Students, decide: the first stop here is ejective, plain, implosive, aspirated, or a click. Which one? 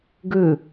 plain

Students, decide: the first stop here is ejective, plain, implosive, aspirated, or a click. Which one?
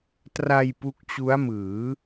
plain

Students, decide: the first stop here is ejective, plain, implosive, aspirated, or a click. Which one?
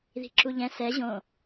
click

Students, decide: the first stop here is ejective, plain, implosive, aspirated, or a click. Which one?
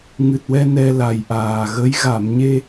plain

